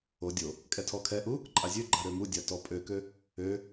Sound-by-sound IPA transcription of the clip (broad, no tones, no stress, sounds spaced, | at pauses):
o dʲ o | kʼ ɛ tʰ ɔ kʰ ɛ ʔ u | ǃʼ a zʲ ø ɡ͡ǃ a ɾ ø m u dʲ a t ɔ pʼ ø k ø | ø